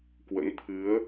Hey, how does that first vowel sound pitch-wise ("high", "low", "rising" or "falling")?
rising